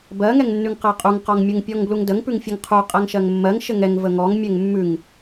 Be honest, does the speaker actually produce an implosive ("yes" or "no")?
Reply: no